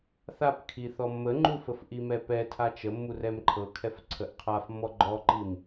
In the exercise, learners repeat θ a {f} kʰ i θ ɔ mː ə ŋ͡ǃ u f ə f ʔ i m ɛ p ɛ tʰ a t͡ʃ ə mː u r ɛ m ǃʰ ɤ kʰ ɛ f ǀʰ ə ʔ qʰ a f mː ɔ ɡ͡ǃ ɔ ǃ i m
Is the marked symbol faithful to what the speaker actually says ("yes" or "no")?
no